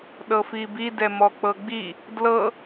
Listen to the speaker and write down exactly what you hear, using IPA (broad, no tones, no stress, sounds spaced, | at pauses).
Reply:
ɗ ɤ f i b i d ɛ m ɔ k͡p ɤ ɡ͡b i | d l ɤ